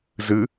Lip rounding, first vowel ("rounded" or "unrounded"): unrounded